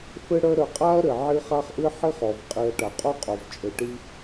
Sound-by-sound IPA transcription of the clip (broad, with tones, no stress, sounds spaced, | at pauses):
f ɘ˦ ɽ œ˦ ɾ œ˨ qʼ a˥ ɐ̯ ɾ ɘ˩ ʕ i˦ χ a˥ χ ʔ ɨ˥ ħ i˥ χ ɔ˩ v qʼ i˨ ɐ̯ ʈ a˩ qʼ o˦ qʼ o˩ v t͡ʃʼ ɘ˨ ʈ i˦